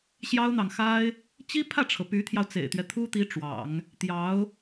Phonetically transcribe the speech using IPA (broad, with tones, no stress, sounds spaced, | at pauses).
ɕ j ɑ˥ ʊ̯ n̪ ɑ˨ ŋ x a˥ ɪ̯ | t͡ɕ i˥ pʰ ä˥˩ ʈ͡ʂʰ ɤ˩ p y˧˥ t̪ʰ j ɑ˧ ʊ̯ t͡s ḛ˨˩ ɪ̯ t̪ ɥ ɛ˦ t̪ʰ u˥ t̪ i˧˥ ʈ͡ʂ w ɑ̰˨˩˦ ŋ | t̪ j ɑ˧˥ ʊ̯